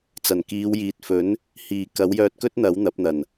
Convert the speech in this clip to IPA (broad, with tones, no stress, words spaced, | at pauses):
t͡sɐ˨˩n kiː˨˧wjiː˨t̚fɵ˨˥n | hiː˨˩ kɐ˨˥wjœː˧t̚kɵ˥t̚ n̪ɐ˨˥w n̪ɐ˨˥p̚n̪ɐ˨˩n